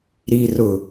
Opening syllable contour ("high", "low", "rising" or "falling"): low